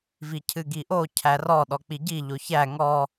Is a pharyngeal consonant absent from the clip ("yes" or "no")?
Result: yes